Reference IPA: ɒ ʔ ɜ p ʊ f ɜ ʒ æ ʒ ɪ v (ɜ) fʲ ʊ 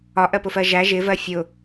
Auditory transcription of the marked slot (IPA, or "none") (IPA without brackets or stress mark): ɜ